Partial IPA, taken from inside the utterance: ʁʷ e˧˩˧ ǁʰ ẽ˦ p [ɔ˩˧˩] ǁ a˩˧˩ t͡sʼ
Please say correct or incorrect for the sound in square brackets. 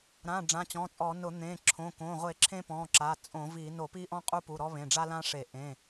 incorrect